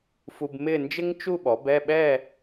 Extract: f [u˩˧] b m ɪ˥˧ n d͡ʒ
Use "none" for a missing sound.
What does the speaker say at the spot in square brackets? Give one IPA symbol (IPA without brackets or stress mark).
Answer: u˧